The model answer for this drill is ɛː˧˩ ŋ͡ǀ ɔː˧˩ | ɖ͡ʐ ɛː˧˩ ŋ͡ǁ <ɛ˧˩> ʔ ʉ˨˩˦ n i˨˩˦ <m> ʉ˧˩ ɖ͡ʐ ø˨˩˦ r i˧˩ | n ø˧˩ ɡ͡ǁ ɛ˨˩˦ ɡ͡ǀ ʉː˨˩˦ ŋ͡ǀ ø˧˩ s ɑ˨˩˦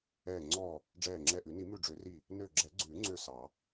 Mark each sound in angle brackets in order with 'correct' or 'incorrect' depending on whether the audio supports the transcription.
correct, correct

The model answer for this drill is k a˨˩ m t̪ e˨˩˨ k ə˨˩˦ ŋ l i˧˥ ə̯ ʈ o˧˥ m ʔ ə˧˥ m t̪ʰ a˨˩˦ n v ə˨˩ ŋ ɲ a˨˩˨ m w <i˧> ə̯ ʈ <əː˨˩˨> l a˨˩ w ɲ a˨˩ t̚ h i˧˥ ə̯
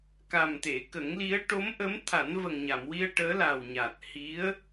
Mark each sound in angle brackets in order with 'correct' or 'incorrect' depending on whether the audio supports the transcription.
correct, incorrect: əː˧˥

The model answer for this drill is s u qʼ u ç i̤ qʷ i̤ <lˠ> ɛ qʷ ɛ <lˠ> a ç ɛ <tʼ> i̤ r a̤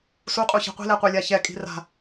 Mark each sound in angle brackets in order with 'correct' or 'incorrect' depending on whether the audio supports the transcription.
incorrect: l, incorrect: lʲ, incorrect: kʼ

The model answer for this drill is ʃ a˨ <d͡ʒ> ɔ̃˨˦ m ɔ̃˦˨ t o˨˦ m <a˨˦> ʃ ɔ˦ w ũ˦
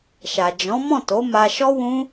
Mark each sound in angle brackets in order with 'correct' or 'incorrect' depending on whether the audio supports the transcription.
correct, incorrect: a˧

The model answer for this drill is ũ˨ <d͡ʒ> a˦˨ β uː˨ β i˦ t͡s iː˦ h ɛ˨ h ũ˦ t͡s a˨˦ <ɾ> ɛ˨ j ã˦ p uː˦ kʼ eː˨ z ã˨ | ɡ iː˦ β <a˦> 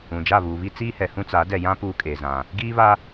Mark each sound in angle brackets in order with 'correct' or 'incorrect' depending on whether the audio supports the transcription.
correct, incorrect: d, correct

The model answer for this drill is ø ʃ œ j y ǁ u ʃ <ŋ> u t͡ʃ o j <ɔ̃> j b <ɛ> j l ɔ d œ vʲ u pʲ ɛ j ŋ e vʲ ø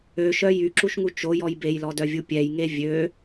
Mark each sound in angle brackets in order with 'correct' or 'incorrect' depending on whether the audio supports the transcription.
correct, incorrect: ɔ, incorrect: e

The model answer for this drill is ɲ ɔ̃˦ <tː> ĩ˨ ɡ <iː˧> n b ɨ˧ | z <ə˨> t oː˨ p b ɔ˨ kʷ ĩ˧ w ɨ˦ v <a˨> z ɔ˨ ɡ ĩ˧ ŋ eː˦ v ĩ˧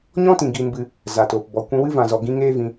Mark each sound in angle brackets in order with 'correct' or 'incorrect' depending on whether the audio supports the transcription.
incorrect: t, correct, incorrect: a˨, incorrect: ã˨

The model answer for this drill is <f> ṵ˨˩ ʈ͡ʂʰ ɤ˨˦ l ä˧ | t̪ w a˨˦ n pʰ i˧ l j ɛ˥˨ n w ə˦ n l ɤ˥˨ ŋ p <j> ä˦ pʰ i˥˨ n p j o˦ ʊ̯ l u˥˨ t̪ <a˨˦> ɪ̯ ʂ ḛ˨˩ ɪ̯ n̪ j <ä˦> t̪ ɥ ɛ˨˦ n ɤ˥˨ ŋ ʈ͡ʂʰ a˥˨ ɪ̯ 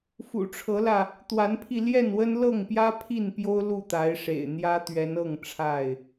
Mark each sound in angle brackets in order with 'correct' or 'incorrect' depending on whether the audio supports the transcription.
correct, correct, correct, correct

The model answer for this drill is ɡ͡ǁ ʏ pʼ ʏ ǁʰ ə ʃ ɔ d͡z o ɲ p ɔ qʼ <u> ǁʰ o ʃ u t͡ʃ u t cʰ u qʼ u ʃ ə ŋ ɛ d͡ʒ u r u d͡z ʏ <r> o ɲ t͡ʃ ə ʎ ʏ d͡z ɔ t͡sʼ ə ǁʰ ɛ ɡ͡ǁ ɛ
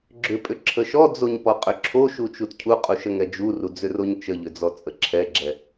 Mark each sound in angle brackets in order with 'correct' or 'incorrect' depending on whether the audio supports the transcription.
incorrect: ʏ, correct

